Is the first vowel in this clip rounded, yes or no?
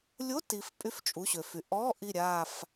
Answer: yes